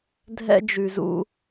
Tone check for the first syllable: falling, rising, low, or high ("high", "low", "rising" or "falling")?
high